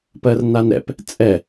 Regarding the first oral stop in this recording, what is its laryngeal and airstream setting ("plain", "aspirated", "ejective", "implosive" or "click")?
plain